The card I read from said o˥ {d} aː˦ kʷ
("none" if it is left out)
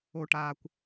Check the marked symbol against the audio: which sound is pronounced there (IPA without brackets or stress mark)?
ʈ